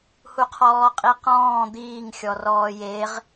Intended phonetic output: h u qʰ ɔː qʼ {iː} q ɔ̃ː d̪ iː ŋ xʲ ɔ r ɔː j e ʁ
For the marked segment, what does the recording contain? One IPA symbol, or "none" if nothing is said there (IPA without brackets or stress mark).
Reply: i